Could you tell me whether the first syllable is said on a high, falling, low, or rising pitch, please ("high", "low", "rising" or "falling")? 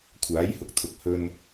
rising